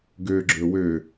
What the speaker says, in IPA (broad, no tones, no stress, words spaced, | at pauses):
ɡøɡ͡ǁɵ wø